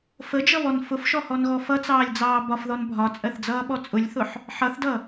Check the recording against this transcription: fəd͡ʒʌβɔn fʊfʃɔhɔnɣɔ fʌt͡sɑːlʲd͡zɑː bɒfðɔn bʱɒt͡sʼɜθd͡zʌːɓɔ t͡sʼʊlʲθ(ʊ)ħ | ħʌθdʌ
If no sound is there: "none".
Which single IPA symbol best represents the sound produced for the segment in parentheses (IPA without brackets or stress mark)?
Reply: ʊ